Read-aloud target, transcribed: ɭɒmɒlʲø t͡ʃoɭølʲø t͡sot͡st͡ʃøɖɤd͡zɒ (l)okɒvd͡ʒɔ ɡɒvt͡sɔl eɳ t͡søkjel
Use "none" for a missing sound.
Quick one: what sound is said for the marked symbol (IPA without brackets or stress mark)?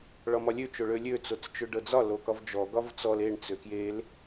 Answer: l